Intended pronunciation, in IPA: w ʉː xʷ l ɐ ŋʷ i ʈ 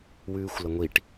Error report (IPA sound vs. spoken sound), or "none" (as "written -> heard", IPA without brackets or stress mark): none